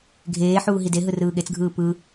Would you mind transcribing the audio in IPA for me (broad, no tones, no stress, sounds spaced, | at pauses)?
ɡʱ eː ħ uː ɦ i d e ɦ ɯ r ɯː ɠ e t͡s ɡʱ ɯː p ɯ